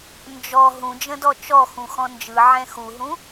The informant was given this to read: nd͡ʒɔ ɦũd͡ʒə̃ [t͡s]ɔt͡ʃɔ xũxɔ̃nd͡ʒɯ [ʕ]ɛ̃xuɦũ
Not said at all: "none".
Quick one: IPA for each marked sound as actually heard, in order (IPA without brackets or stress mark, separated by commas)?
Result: d, ʕ